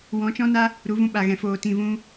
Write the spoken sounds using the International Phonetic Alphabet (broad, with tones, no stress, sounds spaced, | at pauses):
w ɔ̃˨˦ t͡ʃ ɔ̃˦ n a˦ | ɾ u˨˦ v ũ˧ ɓ a˨ ɣ ɛ̃˨ f oː˨ t ĩ˨ v ũ˧